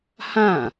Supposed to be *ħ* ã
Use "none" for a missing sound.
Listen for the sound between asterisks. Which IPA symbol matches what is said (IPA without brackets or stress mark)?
h